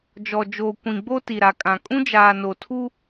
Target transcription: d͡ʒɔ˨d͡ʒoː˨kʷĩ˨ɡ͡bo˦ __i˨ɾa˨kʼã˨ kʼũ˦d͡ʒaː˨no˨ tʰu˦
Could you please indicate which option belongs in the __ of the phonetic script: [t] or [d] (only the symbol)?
t